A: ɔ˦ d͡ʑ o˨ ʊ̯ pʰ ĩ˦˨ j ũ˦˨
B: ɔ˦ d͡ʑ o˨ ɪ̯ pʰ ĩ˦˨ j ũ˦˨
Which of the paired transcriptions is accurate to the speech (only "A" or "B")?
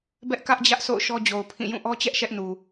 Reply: A